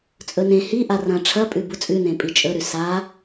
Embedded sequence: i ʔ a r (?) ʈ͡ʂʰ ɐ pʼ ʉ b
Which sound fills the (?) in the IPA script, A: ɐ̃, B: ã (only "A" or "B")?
A